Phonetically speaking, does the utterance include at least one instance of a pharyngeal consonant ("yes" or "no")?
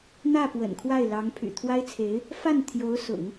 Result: no